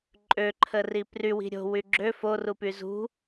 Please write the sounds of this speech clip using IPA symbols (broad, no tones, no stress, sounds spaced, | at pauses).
ǃʼ ø ǃʰ ə r i p r y w i̤ ɾʲ o̤ w y ɡ͡ǁ ø f o r u p y z ṳ